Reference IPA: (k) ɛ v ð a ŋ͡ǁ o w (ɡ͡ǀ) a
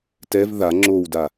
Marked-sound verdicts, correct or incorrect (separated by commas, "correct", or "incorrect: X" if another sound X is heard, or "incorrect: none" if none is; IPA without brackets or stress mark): incorrect: t, incorrect: d